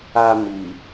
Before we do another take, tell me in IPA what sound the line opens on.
a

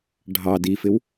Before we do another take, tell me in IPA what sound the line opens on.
ɖʱ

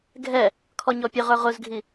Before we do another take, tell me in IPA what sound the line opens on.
ɡʱ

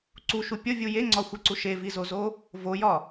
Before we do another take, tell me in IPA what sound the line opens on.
ǀ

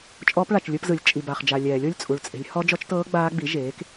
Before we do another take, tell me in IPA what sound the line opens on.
t͡ʃʼ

